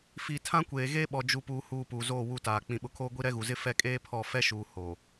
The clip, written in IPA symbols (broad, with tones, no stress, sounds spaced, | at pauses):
f i˨ tʰ ã˦ kʷ eː˨ ɣ eː˦ ɓ ɔ˨ d͡ʒ u˨ p uː˨ h uː˨ p uː˨ z oː˦˨ w u˦˨ t aː˨ k͡p ĩ˨ ɓ ʊ˨ kʰ oː˦ ɡʷ i˦ ɾ ɛ˦ ɣ u˨ z ɪ˦ f ɛ˦ kʼ eː˦ pʰ ɔ˦˨ f ɛ˦ ʃ uː˨ h oː˨